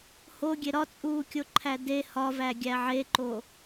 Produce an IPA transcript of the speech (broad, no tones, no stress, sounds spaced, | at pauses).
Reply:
h o ɡʲ e ɾ ɒ t͡sʼ uː kʲ o ǃʰ æ d e h ɒ v æ ɡʲ æ ʕ e ǃ o